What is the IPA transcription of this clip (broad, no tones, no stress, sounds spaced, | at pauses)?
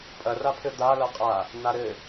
pʼ ɐ r a pʰ ɘ d̪ a l ɐ qʼ a | n̪ a ɾ ɘ